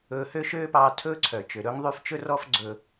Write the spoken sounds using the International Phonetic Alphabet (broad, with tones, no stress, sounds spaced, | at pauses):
ɵː˧ h ø˥ ʃ øː˥ p ɑː˧ tʰ ɵː˥ ǀʰ œ˩ t͡ʃ ø˩ ɾ ɵː˥ ŋ ðˤ y˥ f t͡ʃ ɵ˥ r ɔ˥ f ɡ͡ǀ ɵ˧